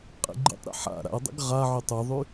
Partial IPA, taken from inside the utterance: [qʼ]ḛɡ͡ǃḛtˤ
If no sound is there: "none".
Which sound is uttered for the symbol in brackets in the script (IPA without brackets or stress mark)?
qʼ